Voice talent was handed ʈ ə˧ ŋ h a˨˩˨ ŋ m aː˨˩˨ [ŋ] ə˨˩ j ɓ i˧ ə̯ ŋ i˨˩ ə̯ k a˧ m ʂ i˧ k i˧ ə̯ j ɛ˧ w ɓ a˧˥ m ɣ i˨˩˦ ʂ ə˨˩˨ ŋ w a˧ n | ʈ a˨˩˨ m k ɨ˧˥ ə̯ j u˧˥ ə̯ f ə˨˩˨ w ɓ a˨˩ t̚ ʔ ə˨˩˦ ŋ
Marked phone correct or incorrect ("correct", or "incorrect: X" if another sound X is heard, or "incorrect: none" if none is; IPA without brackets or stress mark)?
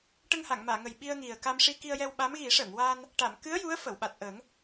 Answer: correct